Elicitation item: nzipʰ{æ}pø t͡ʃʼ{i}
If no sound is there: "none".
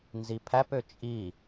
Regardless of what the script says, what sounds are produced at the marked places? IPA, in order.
æ, i

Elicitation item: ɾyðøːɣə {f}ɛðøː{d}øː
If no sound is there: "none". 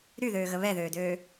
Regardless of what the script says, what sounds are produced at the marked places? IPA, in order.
β, d

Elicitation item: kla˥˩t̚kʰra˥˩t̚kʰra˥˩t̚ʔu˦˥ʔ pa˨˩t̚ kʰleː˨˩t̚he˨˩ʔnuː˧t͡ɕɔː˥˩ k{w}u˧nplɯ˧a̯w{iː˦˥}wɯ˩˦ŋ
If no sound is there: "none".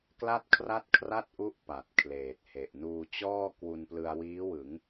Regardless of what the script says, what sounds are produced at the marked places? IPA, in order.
w, iː˦˥

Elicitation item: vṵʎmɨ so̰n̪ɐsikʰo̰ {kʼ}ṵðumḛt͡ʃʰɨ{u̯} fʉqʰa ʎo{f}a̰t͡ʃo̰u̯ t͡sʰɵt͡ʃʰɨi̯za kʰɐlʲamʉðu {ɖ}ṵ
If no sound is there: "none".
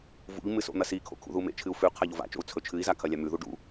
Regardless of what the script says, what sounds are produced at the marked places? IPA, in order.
kʰ, u̯, v, ɖ

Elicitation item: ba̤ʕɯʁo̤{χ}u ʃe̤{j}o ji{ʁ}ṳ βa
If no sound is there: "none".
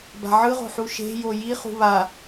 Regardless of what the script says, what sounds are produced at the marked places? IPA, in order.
ħ, j, χ

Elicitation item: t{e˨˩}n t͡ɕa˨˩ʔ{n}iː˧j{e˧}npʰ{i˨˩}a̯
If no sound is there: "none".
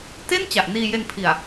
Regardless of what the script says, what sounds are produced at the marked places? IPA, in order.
e˥˩, n, e˧, i˨˩

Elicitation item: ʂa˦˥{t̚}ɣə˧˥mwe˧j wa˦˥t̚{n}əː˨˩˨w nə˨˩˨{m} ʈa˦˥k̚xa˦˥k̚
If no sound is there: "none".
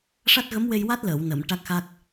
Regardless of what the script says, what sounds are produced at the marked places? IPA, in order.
t̚, l, m

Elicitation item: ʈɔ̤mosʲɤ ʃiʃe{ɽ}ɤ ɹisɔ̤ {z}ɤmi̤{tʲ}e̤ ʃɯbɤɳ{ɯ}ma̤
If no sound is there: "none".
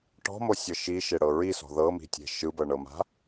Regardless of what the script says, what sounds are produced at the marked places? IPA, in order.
ɽ, ð, tʲ, ɤ

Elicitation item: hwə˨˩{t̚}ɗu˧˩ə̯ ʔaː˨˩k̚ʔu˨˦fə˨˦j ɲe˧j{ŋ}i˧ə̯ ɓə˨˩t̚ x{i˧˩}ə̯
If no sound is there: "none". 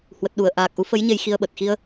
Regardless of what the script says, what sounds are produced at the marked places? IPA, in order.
t̚, x, i˧

